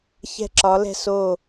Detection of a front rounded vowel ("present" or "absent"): absent